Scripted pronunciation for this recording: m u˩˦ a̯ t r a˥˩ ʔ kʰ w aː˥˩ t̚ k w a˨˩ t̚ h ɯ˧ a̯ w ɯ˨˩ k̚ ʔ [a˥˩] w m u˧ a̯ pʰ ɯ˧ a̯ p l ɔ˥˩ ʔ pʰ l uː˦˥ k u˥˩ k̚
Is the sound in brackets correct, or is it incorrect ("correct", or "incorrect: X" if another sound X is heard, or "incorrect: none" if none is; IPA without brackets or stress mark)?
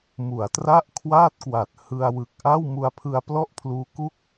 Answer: correct